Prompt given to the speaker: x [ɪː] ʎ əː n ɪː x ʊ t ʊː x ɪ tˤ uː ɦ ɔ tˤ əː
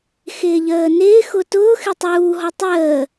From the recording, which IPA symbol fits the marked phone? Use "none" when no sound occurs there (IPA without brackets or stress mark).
ɪː